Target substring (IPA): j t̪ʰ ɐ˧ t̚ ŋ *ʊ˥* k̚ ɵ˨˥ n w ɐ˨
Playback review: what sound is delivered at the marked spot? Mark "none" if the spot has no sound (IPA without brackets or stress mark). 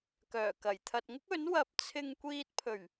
ʊ˥